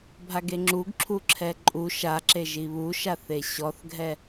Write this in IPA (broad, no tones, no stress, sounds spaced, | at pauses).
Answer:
bʱ a ɡ e ŋ͡ǁ u ɡ ǁʰ u ǁʰ ɛ ǃʼ u ʃ a ǁ e ʒ i β u ʃ a θ e ɕ ɔ θ ɡʱ ɛ